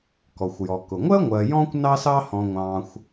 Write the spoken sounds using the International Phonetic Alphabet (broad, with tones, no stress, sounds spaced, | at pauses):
k ɔ˩ xʷ j ɔ˩ k ʊ˩ ŋʷ ɜ˥ ŋʷ ɜ˨ j ɔ̃ː˦ kʷ n ɑ˦ s ɑ˦ h ɔ̃˨ ŋʷ ɑ̃ː˨ xʷ